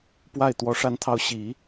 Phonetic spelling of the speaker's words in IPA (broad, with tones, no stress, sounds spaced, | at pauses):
p w a˥˩ ɪ̯ t̪ w ɔ˧˥ ʂ a˥˧ n t̪ʰ ɑ˥˩ ʊ̯ ɕ i˨˩˦